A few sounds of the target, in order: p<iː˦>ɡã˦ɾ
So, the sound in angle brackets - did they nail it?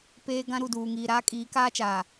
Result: no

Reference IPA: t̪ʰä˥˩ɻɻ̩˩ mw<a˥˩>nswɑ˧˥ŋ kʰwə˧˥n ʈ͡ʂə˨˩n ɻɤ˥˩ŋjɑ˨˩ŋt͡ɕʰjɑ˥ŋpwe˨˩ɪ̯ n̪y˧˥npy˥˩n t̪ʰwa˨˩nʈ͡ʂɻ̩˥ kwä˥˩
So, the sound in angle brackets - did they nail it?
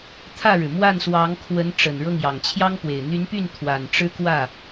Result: yes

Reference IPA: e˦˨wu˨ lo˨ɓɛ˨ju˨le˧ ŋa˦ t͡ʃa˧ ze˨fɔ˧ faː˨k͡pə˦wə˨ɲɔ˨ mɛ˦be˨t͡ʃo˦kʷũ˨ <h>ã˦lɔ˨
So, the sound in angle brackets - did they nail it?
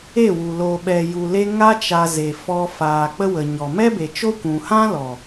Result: yes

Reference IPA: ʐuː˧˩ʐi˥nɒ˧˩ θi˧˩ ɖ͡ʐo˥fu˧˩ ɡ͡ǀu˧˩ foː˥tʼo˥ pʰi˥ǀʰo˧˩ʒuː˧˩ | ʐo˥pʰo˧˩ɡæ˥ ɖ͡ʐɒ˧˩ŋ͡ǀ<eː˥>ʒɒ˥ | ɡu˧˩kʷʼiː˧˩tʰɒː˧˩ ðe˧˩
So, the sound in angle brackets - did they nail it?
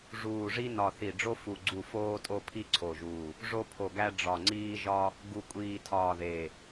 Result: no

